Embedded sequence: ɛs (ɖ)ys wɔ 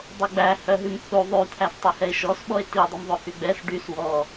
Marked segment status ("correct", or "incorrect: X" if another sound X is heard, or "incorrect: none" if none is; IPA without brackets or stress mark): correct